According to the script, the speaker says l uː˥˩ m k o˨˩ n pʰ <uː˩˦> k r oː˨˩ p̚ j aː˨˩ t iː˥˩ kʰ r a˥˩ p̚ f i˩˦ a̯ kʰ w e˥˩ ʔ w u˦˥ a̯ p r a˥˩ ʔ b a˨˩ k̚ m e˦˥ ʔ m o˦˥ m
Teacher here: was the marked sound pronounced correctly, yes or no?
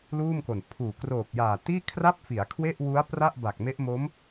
no